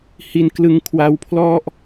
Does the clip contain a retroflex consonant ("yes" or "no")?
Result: no